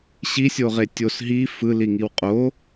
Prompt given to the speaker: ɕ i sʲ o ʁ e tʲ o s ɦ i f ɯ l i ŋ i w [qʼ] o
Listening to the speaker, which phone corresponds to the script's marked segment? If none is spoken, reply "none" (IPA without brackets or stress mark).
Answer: qʼ